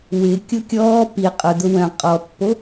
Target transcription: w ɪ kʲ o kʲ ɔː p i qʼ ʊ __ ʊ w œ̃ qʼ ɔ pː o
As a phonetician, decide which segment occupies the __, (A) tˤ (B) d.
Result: B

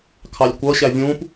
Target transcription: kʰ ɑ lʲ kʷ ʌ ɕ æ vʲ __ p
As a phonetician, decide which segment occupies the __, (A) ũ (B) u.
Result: A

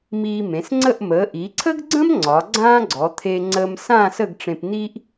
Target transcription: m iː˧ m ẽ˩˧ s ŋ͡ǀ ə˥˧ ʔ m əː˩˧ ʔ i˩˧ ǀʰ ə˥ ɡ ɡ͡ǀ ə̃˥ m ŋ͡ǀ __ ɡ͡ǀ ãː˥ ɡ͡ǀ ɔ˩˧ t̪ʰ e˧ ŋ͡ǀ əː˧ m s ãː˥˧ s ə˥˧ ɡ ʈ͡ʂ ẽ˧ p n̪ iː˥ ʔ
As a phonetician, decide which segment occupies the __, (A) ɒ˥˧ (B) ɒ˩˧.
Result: B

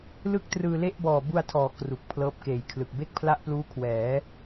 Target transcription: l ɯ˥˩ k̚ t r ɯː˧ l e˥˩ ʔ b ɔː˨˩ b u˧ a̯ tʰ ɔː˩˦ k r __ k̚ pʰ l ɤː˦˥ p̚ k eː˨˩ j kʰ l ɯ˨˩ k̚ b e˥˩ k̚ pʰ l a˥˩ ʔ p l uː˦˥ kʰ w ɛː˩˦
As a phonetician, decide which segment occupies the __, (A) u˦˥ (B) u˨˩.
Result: B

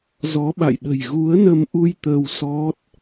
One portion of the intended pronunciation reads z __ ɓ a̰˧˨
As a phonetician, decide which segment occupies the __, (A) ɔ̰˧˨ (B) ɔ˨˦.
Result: B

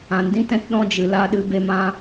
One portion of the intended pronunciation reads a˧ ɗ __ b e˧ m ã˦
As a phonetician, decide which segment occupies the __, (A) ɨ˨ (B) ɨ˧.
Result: B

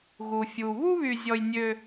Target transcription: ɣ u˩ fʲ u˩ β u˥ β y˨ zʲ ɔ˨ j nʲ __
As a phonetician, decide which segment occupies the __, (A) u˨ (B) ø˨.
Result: B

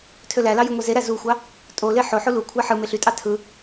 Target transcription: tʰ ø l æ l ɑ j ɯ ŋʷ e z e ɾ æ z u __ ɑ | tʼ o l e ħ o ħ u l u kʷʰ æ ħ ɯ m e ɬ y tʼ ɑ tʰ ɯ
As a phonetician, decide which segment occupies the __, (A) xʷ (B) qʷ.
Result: A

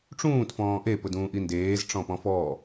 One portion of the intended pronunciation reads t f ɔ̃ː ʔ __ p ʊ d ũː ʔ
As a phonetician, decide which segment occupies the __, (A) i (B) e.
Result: B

